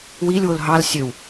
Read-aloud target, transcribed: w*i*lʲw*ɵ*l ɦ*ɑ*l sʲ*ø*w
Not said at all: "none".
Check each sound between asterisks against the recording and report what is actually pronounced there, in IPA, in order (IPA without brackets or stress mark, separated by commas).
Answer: i, o, ɑ, ø